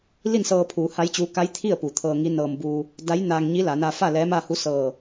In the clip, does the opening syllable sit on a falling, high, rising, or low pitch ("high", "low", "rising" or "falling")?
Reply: falling